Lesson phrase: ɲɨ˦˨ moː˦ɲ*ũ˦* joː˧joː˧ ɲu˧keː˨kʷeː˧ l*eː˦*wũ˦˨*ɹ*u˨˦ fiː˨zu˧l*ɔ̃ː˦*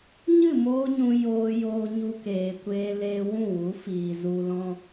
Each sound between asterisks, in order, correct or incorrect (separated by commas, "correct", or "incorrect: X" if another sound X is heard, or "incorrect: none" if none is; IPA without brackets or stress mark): incorrect: ũ˧, incorrect: eː˧, incorrect: w, incorrect: ɔ̃˦